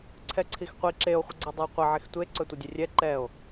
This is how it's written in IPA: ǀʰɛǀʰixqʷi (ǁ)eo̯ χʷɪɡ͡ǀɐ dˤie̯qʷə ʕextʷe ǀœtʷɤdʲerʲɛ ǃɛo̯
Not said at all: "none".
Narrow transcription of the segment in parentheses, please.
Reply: ǁ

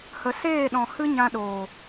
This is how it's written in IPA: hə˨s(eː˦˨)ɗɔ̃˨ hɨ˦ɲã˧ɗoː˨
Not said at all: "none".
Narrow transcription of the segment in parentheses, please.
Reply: eː˦˨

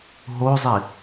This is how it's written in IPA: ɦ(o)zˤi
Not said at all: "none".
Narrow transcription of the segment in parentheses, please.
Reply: o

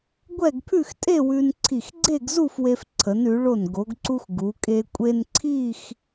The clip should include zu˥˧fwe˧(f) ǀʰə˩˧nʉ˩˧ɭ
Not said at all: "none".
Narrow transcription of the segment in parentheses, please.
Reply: f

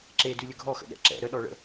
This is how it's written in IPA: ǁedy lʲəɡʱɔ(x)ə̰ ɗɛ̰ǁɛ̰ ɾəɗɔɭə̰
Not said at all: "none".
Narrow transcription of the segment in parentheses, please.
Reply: x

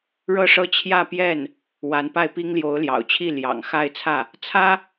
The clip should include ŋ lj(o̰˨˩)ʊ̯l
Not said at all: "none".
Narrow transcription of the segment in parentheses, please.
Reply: o˧˥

